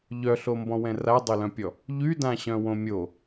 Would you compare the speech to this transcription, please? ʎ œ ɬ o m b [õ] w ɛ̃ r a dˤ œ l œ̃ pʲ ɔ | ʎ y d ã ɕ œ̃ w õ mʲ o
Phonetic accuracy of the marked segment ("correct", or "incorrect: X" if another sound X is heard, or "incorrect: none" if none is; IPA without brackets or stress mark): incorrect: ɔ̃